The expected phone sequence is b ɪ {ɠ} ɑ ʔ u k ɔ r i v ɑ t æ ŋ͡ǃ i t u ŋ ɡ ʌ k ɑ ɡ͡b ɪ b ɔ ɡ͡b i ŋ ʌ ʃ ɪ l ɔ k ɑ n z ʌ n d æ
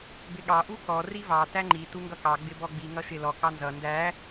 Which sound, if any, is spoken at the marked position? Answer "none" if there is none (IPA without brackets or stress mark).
ɠ